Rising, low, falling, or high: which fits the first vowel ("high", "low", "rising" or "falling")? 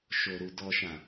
low